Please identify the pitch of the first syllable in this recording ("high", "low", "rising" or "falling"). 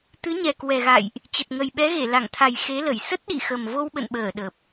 rising